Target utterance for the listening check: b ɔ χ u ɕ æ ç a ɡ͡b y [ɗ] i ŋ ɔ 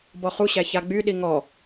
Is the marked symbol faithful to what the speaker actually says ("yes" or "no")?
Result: yes